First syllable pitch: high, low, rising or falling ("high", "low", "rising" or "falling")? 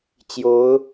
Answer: rising